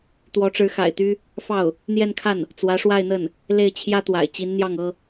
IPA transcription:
t̪ w ɔ˧˥ ʈ͡ʂ ɻ̩˧˥ x a̰˨˩ ɪ̯ t̪ y˥ | f ɑ˥˩ ʊ̯ | n̪ j ɛ˥˧ n kʰ a˥˩ n | t͡s w ä˧˥ ʂ w a˥˧ ɪ̯ n̪ ə˥˩ n | l e˥˩ ɪ̯ t͡ɕʰ j ä˥ t̪ w a̰˨˩ ɪ̯ t͡ɕ i˧˥ n n̪ j ɑ˥˩ ŋ ɤ˥

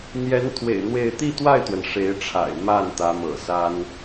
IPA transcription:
n̪ j ɛ˧˥ n t̪ʰ w ḛ˨˩ ɪ̯ n̪ w e˥˧ ɪ̯ t̪ i˥˧ t̪ w a˥˩ ɪ̯ t̪ w ə˩ n ʂ e˧˥ ɪ̯ ʈ͡ʂʰ a̰˨˩ ɪ̯ m a˥˩ n t̪ ä˧˥ m ɤ̰˨˩ s a˥ n

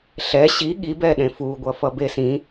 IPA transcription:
ɬ ɛ ɕ i ɠ i b ɛ ɗ ẽ f u ɡʷ ʌ f ʌ b e s ĩ

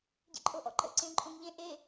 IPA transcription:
ɟ ḛ ǃʼ o ʔ ɔ̰ ǃ ə̰ ǀ ẽ ǃʼ õ ŋ ʎ ẽ ʔ e

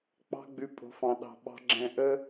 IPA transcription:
k͡p ɑ̤˦ ɡ͡b ʉ˧ pʼ o̤˨ f ɑ̃˨ ɗ ɑ̤˨ ɓ ɑ̤˧ ɡ͡ǁ ɛ̃˧ ʔ ə˦

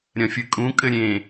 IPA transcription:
ɾʲ ɐ̃ fʲ ɨ kʼ ũ kʼ ɘ ɾʲ ẽ

